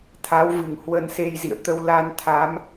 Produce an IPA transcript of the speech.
t̪ʰ a˨˦ w v ɨ˧˩ ŋ h w ə˧ n s e˧ j z ḭ˧˨ ə̯ t̪ ə˧ w l a˧ n t̪ʰ a˨˦ m

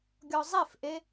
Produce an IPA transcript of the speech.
ɡʲ ɔ zˤ e f ʔ e

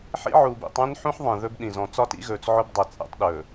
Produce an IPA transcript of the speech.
ħ ḭ˦ ʕ uː˨ b ḭ˨ tˤ ẽ˦ n ħ ũ˦ ħ ðˤ ẽ˨ ð ɵ˦ b ɗ ĩ˨ z ɔ̃˨ t͡s ɒ˦ t ḭ˦ ɣ ɵː˨ t͡s ʕ ʊ˦ b dˤ e˨ t͡sʼ ḛ˦ tˤ ɗ ɵː˨

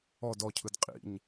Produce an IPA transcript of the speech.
ɔ d ɔ cʰ ɯ d qʼ ḭ ɲ

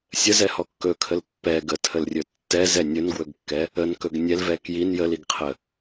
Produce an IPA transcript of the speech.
sʲ ə z ɛ h ɔ kː ɵ kʰ ə l pː ɛ ɡ ə tʰ ə l rʲ ɵ tː ɛ z ɛ nʲ ɵ n ɡ w ɵ ɡ kː ɛ | ə n k ɵ ɡ nʲ ɛ l v ɛ k j i n j ə l i ɡ qʰ ə

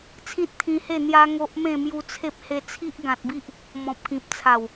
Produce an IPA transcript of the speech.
t͡sʰ ĩ˦ t̚ t̪ʰ ĩ˧ h e˥˧ n̪ j a˦ ŋ o˦ ʔ m ẽ˥˧ m j u˧ t͡sʰ e˦ p̚ h e˧ t͡sʰ i˦ ʔ ɡ ã˨ t̚ b i˦ ʔ | m ɔ̃˨ p̚ k ĩ˨ p̚ t͡sʰ a˨˩ w

